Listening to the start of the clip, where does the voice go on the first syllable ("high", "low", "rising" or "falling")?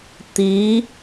rising